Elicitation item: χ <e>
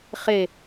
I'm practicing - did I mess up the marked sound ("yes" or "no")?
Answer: no